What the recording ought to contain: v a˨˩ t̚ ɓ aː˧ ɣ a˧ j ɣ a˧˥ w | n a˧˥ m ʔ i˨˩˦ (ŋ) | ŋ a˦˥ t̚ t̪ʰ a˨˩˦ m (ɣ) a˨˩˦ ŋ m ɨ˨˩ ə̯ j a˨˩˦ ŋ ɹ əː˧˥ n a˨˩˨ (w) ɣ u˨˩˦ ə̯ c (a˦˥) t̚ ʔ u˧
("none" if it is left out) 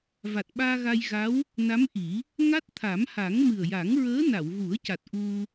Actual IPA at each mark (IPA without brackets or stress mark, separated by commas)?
none, h, w, a˨˩